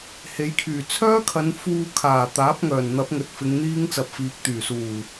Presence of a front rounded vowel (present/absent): present